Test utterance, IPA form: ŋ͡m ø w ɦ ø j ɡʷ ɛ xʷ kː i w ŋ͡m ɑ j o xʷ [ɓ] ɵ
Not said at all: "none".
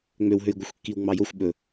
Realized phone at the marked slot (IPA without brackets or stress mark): ɓ